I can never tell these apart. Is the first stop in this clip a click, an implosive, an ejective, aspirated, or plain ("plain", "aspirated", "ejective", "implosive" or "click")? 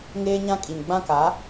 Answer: ejective